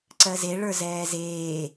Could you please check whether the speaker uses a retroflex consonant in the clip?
yes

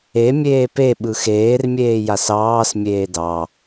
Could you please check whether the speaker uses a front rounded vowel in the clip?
no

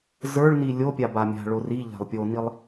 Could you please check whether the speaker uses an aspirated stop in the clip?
no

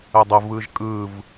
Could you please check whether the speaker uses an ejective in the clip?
yes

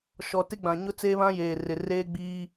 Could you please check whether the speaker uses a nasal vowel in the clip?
yes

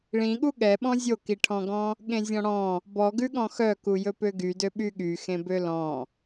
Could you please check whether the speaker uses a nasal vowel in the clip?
yes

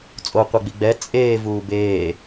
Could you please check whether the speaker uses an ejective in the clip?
yes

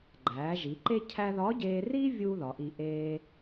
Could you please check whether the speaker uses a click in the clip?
yes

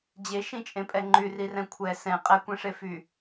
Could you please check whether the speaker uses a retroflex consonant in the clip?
yes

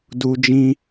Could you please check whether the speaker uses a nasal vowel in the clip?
yes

